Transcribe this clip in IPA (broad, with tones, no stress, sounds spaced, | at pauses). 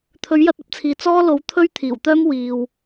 t̪ʰ ɵ˨˥ ɥ j ɐ˧ t̚ ɐ˥ p̚ t͡sʰ iː˨ t͡s ɔː˥ l o˨˥ w t̪ʰ ɵ˥ ɥ t̪ʰ iː˨˩ w t̪ œː˥ m w iː˨ w